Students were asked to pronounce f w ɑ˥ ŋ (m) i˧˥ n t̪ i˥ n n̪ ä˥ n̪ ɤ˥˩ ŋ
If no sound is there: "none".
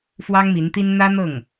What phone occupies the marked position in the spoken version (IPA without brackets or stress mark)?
m